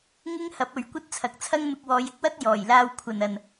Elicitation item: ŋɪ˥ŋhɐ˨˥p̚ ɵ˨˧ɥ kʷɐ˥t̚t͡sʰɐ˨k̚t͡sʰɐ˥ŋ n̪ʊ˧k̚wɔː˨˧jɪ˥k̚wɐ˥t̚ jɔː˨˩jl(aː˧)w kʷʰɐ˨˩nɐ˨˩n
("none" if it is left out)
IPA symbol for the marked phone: aː˧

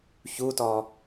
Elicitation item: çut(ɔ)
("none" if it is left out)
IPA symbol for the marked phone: ɔ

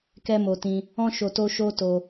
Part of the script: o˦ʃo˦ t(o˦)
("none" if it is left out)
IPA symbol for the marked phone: o˧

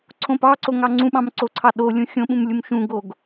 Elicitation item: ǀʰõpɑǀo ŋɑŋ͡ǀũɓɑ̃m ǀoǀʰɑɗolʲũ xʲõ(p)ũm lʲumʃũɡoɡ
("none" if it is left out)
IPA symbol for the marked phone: ɓ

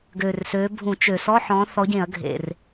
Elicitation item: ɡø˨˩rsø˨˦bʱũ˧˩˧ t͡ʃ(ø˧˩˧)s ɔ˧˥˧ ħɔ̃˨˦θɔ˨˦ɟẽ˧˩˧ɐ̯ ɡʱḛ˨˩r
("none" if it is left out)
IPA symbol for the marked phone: ø˧˩˧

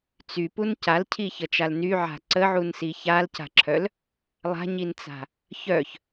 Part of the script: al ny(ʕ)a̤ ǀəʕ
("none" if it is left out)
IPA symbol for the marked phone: ʕ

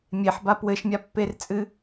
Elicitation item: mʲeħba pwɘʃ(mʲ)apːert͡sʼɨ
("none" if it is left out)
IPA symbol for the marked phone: mʲ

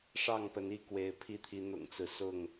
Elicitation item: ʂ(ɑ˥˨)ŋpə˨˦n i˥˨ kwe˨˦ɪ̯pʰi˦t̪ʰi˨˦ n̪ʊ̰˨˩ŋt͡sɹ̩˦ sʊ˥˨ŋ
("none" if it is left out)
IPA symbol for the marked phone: ɑ˥˨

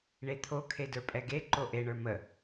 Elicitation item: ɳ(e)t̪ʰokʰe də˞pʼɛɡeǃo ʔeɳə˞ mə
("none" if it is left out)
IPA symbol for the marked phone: e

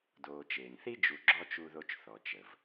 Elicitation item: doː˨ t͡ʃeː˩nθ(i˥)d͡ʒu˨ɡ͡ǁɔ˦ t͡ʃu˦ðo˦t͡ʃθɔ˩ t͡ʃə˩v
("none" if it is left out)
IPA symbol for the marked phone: i˥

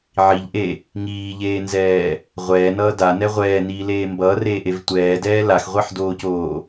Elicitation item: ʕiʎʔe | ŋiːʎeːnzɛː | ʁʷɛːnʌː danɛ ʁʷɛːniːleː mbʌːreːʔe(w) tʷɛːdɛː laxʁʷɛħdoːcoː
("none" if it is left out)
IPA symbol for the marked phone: v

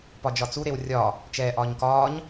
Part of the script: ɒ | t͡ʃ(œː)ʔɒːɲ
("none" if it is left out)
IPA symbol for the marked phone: ɛː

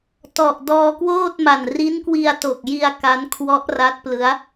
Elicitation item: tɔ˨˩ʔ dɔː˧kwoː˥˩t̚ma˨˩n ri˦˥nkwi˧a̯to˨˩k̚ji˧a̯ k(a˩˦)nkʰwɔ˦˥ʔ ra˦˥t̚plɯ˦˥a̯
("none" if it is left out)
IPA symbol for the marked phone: a˦˥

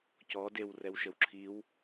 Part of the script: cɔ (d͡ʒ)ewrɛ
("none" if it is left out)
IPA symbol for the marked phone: d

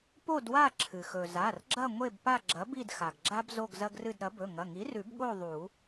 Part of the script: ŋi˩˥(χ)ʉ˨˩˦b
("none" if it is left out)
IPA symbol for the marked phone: r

